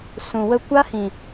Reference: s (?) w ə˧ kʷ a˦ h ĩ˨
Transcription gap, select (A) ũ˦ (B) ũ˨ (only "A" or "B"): B